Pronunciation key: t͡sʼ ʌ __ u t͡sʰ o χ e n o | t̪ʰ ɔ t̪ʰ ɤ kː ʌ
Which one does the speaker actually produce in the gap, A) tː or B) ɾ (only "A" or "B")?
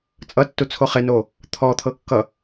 A